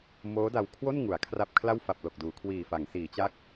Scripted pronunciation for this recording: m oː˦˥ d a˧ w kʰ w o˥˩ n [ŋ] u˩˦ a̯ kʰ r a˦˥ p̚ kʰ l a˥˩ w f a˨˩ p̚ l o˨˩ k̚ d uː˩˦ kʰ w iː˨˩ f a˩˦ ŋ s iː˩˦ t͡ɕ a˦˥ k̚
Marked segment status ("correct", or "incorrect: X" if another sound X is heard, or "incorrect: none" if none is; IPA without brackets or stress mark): correct